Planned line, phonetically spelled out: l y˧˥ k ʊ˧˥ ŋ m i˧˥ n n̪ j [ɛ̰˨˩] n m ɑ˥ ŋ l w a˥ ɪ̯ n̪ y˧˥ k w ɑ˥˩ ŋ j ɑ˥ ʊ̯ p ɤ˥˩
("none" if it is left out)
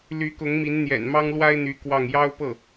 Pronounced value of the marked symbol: ɛ̰˨˩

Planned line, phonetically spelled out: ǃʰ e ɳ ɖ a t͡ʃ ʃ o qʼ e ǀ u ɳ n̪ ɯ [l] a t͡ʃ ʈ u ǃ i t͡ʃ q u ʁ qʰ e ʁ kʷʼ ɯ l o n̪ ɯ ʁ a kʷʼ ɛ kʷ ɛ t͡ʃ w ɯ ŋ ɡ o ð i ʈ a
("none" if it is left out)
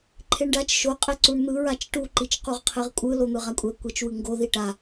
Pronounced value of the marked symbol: ɹ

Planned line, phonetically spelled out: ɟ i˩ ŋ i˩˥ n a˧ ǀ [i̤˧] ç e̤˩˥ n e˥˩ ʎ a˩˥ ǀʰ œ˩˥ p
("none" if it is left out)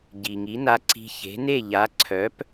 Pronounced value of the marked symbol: i̤˧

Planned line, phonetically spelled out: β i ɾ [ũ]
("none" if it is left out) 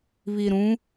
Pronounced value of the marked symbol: ũ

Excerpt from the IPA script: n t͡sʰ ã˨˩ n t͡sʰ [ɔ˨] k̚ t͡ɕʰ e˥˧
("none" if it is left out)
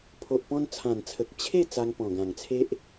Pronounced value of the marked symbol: ə˨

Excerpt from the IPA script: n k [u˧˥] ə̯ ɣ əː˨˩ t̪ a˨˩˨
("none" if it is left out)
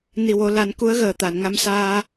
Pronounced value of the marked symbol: u˧˥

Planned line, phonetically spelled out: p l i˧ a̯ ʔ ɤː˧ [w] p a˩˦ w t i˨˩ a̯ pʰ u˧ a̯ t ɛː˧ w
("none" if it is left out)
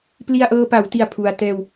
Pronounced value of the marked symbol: none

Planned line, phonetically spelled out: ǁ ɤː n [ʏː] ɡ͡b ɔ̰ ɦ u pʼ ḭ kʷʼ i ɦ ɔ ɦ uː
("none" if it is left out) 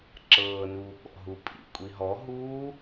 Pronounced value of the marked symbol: uː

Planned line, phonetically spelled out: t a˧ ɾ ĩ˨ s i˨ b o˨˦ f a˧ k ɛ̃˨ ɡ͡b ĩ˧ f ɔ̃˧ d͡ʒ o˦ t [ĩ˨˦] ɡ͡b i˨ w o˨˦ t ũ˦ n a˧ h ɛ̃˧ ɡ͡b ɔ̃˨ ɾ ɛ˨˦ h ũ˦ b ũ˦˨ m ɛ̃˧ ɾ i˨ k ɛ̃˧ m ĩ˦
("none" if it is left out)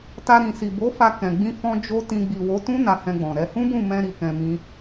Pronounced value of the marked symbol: ĩ˧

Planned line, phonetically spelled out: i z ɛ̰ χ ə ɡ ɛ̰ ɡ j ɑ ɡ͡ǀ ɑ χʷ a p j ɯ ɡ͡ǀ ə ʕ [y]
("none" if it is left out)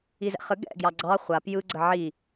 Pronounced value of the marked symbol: i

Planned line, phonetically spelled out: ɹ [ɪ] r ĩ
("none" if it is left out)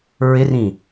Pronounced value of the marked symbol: ɪ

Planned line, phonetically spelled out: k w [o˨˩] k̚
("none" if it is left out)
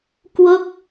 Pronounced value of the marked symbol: o˥˩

